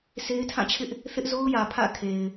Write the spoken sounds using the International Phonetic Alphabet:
s e˦ ɪ̯ tʰ ã˦˨ t͡ɕʰ ɪ˦ ʔ | θ ɪ˦ ʔ z o˦ ʊ̯ j ä˨ pʰ ä̰˦˨ kʰ e˨ ɪ̯

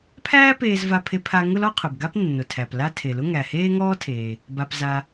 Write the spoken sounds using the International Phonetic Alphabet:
pʰ æː˥ p eː˥ z v a˥ pʰ e˥ pʰ a˥ ŋ ʊ˥ l ɔ˥ qʰ ʊ˩ b ɡ a˥ p nː ʊ˩ tʰ æ˩ p l a˥ tʰ e˩ l ʊ˥ ŋ æ˩ h eː˥ ŋ ɔː˥ tʰ eː˩ | b a˩ p z a˩

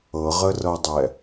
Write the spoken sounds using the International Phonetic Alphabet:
ɤ ʁ ə r ɤ dˤ ɛ

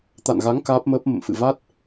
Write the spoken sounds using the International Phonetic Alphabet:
t̪ a̰˧˨ n ɣ a˨˦ ŋ k aː˦˥ p̚ m əː˦˥ p̚ m ə̰˧˨ m f ɨ̰˧˨ v a˦˥ t̚

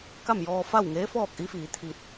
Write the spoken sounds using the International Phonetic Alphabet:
k a˥˨ m j ɔː˧ f a˥˨ w ŋ eː˧˥ f ɔː˥˨ k̚ ʔ i˧˥ f iː˩˧ t̪ʰ i˧ t̚

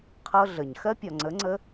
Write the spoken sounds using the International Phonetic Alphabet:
qʰ ɤ˦ ɮ ə˨ ɲ x ɜ˦ pʲ ɒ˨ ŋ͡ǀ ə˨˦ ŋ͡ǀ ə˦

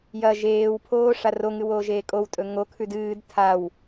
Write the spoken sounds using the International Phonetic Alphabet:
j ɐ ʒ eː w pʰ oː ʂ a r o ŋ ɨ w oː ʒ eː kʼ o w tʼ ɵ ŋ o kʰ ʉ d ɨː d tʰ a w

